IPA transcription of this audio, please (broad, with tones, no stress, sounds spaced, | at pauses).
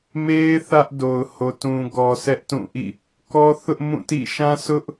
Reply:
m e˦ ɪ̯ θ ä˦ ʔ d o˨ ʊ̯ h o˨ t ũ˨ ɡ ɔ˨ sʰ ɛ˦ ʔ t ũ˦˨ ʔ ḭ˦˨ | k ɔ˦ θ ʊ˦ ʔ m ũ˦˨ t ḭ˦˨ ʃ ã˦ sʰ ʊ˦ ʔ